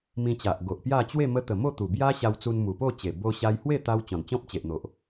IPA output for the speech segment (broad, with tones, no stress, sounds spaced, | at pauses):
m ĩ˧ t͡ɕ a˨ ʔ ɡ o˨ ʔ p j a˥˧ t͡ɕ w e˥˧ m ə˧ t̪ ə˨˩ m o˥˧ t̪ u˨˩ b j a˦ ɕ a˧ w t͡s u˧ n m u˨˩ p o˥˧ t͡ɕ e˨˩ b o˧ ɕ a˧ j h w e˥˧ t̪ a˧ w t͡ɕ ɔ̃˨˩ n t͡ɕ ɔ̃˦ p̚ t͡ɕ e˨ ʔ n̪ o˨ ʔ